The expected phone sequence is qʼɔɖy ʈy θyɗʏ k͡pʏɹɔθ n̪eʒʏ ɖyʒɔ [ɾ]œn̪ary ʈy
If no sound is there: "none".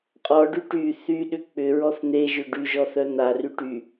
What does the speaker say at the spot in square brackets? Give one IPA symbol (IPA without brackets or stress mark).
θ